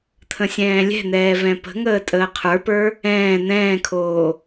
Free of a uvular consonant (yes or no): no